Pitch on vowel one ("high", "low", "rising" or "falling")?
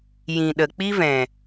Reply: low